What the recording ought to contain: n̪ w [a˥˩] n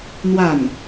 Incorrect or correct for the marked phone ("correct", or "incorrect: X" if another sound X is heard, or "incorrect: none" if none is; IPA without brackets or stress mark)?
correct